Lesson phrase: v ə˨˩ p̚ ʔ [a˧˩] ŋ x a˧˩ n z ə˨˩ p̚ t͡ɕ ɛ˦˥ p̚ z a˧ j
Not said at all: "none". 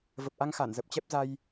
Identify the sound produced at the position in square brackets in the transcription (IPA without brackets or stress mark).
a˧